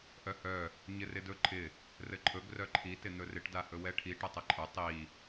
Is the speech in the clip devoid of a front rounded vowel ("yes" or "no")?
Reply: no